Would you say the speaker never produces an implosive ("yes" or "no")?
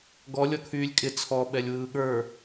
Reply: no